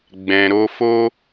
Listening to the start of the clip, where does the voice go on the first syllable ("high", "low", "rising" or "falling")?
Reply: low